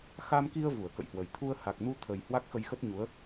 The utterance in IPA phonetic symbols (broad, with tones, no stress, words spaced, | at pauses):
xa˧mki˧ə̯ vu˧˩ə̯kə̰˧˨jhwə˨˩j t̪ʰu˧ə̯ ha˨˩k̚nu˧t̪ʰə˨˩j hwa˦˥k̚xə˧jxə˦˥t̚ɲu˨˦ə̯